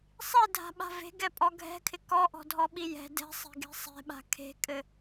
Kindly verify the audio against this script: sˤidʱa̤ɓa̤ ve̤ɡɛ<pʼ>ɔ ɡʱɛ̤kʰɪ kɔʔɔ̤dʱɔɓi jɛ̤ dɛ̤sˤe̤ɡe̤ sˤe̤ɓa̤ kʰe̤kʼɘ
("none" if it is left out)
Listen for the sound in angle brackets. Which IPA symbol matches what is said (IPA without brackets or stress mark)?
pʼ